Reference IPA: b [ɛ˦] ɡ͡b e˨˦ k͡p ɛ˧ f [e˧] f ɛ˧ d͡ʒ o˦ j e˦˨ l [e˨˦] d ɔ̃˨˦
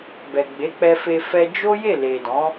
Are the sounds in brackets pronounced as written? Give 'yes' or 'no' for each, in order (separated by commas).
no, yes, no